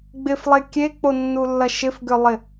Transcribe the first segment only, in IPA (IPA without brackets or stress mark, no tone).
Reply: ɡ͡b